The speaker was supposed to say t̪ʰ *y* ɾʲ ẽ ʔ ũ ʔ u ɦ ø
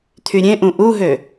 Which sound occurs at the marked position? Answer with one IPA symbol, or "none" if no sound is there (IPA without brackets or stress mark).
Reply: y